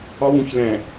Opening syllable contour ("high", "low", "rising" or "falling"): high